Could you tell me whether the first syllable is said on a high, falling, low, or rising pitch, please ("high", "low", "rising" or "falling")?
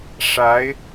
rising